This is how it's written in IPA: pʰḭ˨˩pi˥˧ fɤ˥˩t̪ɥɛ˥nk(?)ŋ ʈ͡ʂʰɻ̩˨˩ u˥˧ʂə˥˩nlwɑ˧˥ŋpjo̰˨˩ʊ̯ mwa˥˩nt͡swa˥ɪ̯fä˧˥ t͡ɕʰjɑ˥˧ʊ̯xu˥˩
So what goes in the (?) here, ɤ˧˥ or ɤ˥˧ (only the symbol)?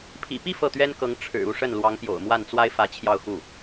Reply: ɤ˧˥